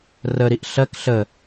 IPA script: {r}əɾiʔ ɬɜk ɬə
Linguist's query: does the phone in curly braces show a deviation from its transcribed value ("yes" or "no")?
no